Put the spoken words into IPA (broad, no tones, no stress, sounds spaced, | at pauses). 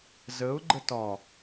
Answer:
z ə ʊ̯ ɡ͡ǃ ə t ɒ